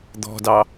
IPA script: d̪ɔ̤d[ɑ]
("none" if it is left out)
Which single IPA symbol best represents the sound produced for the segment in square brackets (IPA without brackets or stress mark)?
ɑ